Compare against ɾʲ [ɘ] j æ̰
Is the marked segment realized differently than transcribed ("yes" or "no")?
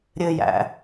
no